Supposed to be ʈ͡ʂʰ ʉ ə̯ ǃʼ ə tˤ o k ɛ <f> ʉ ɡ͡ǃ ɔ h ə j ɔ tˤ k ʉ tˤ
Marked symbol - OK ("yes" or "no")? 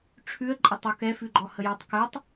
yes